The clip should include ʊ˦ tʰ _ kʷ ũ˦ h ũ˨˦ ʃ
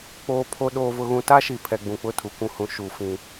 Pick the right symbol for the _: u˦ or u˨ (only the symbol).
u˨